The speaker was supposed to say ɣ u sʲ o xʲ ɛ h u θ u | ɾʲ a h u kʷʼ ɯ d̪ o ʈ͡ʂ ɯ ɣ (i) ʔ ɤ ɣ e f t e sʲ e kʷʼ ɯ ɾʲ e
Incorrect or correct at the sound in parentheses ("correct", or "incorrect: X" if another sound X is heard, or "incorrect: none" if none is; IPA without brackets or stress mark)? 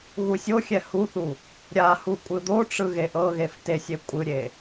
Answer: incorrect: e